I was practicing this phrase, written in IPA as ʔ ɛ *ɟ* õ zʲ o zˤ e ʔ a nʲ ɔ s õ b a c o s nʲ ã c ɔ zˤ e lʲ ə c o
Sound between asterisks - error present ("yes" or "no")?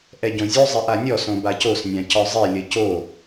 no